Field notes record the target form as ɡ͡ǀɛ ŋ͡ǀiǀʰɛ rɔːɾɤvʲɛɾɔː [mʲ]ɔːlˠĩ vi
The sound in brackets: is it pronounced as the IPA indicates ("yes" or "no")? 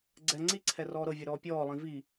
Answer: no